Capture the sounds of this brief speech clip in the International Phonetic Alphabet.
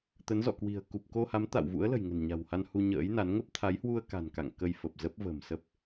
t̪ə˨˦nzɔ̰˧˨kwi̤˨˩ə̯ ku˨˩p̚ ko˧ha˨˦m t̪a̰˧˨wvṵ˧˥ə̯ lə̤˨˩jŋə̤˨˩nɲa̤˨˩wha˧n hu˧ɲə̰ː˧˥jna˨˦n ŋə˦˥p̚t̪ʰa˨˦jhwu˧ə̯ ka̤˨˩nka̰˧˨ŋ kə˧jfə˨˩p̚zə˦˥p̚ və̤˨˩msə˦˥p̚

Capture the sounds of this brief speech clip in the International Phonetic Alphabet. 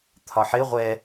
t̪ʰɒħɪ ʁʷɛ

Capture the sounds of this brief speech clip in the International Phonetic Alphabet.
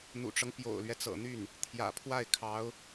n̪ṵ˨˩ʈ͡ʂɤ˦ŋ pjo̰˨˩ʊ̯lɥɛ˦t͡sɤ̰˨˩n̪y˥˩n | t̪ʰjä̰˨˩pʰwa˥˩ɪ̯ kʰɑ˧˥ʊ̯

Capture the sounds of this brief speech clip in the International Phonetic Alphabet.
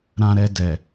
ɾã˧ɾɛ˧dɛ˨

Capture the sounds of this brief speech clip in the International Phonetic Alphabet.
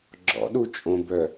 ɡ͡ǁɔ̰ɗu t͡ʃʼõbœ

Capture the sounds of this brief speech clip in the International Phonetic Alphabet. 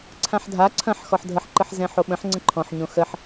ǀʰãħdʱa ǀʰɐ̃ħ xɔħdʱəħǃəħ zɛ̃ħoɓə̃ħ ŋ͡ǀə̃ǃʰɔ̃ħɲõ xəħ

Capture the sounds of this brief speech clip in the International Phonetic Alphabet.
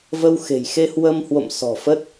və˧w xe̤˨˩j xe˧hwə˧mhwo̰˧˨m sɔ̤˨˩fə˦˥t̚

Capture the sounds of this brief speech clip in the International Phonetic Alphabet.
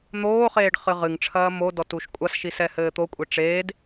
n̪oːχeːɖ χɨʁɨŋʈ͡ʂʰɐː modɔt uʃkʷʼasʃi sɛhɘːt̪okʷʼe ʈ͡ʂeːd

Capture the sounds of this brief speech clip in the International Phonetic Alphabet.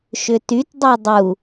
ʃʏtytdˤy dˤu

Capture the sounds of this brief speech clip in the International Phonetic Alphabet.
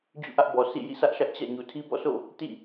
d͡ʑṵ˦˨ʔä˦ʔbɔ˨ sḭ˦˨ jḭ˦˨sä˦ʔʃä˦ʔ t͡ɕä̰˦˨ ɲu˨tʰi˦bɔ̰˦˨so̰˦˨ | tḭ˦˨

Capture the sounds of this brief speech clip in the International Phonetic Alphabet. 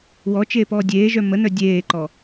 wɔt͡ʃeːpɔː dʲeːʒœ mənœ dʲeːǃɔ

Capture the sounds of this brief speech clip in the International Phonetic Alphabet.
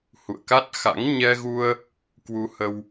hṵ˧˨ə̯ka˦˥t̚xa̰˧˥ŋ ɲɛ˧ɣu˧ə̯ | kwu˧hə˧w

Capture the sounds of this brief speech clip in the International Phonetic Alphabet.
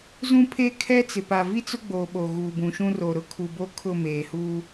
zũ˦pʰeː˦kʰɛ˦t͡sɪ˨ pa˨vi˦t͡sʊ˦ɡ͡bo˨ ɓo˨ɣuː˨bũ˨ ʃũ˦ro˨ ɾʊ˦kʰu˨bo˦kʰʊ˦˨ meː˨huː˦

